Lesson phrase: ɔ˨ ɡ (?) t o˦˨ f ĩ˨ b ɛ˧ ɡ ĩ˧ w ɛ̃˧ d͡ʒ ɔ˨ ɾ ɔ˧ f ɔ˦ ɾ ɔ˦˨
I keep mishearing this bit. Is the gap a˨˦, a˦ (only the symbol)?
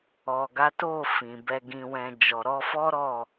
a˨˦